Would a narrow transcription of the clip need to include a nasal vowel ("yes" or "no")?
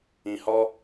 yes